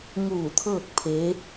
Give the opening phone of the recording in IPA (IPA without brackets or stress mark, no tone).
ŋ